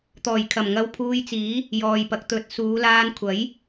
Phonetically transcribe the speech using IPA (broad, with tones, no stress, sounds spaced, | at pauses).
t̪ ɔː˨˩ j kʰ ɐ˨˩ m ŋ ɐ˧ w pʰ uː˧ j t͡s iː˨˥ | j ɔː˨ j p ɐ˨˥ k̚ t̪ ɵ˨˥ t̚ s uː˨˧ l aː˧ n kʷʰ ɐ˨˥ j